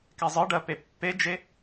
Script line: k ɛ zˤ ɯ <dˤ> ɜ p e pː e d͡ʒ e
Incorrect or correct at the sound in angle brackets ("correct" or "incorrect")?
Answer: incorrect